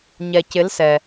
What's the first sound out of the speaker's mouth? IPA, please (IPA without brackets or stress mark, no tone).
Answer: ɲ